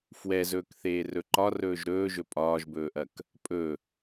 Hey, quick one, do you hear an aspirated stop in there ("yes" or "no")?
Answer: no